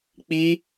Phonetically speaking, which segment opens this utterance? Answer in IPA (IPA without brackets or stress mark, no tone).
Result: k͡p